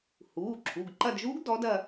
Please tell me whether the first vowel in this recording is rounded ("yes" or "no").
yes